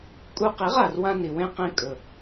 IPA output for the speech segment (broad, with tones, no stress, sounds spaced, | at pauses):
kʼ u˧ q i˨˦ ʁ a˨ r w ã˧ n i˨ w ẽ˧ q ẽ˧ kʼ ɵ˨